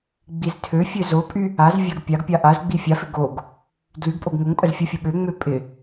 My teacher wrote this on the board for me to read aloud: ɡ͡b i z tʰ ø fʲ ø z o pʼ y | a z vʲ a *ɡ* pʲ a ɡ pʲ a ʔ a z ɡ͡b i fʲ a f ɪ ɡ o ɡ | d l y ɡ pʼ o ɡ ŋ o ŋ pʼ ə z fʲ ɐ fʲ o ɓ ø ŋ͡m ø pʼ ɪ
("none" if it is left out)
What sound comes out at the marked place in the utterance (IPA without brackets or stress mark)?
ɡ